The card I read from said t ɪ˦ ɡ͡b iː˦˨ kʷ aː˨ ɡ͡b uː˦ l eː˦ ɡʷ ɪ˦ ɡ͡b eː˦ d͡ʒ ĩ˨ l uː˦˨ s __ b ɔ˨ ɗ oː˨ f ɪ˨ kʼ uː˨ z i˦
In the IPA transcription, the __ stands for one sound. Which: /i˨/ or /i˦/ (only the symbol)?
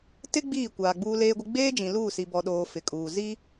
i˨